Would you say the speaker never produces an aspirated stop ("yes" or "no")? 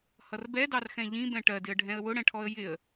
no